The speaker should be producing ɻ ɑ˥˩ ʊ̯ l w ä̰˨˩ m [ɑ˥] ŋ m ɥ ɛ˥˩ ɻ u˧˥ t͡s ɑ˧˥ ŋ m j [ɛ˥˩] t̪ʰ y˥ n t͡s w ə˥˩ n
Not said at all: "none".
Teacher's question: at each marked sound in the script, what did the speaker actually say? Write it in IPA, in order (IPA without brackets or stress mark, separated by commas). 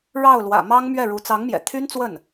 ɑ˥, ɛ̰˨˩